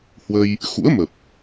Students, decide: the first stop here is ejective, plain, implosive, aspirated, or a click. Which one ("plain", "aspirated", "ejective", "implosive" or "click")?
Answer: plain